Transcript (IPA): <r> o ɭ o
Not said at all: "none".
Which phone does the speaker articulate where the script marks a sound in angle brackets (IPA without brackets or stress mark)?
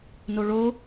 n